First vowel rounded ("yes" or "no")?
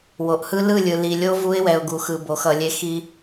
yes